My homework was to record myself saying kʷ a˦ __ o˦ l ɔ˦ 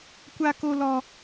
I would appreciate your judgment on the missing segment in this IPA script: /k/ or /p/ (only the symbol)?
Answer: k